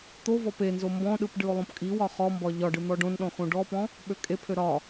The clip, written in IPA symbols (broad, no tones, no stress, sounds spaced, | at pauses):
t̪ o v ɔ p e n z o m b ɔ̃ ɗ ɯ p ɖ ɯ o̯ lˠ õ p kʼ i w ɒ χ ɔ m b ɒ ʎ ɒ ɖ ɯ n̪ ɔ ɖ õ n ɗ ɔ̃ x õ ɖ ɔ p ɔ̃ | ɓ ø kʼ e pʰ ø ɾ ɒ